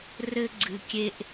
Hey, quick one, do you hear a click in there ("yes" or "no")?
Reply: yes